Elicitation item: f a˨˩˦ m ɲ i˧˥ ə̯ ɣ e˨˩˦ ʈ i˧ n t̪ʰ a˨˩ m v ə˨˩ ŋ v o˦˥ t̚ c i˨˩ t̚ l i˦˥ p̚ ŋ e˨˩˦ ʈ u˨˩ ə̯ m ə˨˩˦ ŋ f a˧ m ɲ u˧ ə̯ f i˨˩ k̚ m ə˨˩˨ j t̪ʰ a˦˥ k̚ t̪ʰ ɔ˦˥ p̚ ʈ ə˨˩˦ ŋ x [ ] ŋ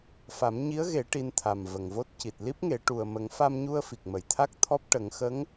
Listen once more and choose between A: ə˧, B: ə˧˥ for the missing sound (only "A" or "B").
B